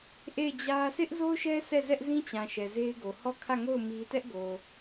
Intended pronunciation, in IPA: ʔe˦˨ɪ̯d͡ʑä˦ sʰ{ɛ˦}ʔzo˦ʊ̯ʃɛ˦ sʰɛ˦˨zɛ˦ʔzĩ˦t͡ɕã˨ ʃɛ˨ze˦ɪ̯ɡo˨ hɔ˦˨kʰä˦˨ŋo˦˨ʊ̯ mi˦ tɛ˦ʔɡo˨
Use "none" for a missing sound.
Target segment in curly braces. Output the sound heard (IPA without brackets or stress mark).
ɪ˦